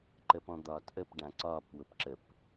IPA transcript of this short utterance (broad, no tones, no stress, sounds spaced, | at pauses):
ǃ ə p ɔ̃ d̪ ɒː t ʔ ə p ɖ ã ǀ ɒː p w ʊ p ǁ ə p